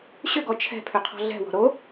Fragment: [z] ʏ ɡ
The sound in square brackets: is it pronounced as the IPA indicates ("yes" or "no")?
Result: no